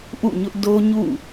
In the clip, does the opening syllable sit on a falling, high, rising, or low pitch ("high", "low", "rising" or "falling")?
falling